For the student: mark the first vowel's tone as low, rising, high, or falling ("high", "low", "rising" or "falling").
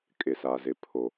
low